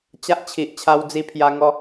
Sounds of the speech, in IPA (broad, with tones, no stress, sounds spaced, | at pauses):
t͡ɕ a˦ ʔ t͡ɕʰ i˨ ʔ t͡ɕʰ a˧ w d͡z i˧ pʰ j a˧ ŋ ɔ˧